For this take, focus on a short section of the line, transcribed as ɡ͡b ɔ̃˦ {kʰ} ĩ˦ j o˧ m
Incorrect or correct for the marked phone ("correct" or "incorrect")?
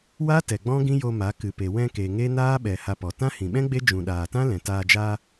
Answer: incorrect